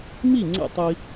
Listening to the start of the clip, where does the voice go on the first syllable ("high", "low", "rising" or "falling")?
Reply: falling